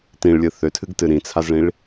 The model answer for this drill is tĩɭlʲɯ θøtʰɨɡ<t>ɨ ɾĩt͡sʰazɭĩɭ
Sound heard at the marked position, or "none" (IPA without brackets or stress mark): t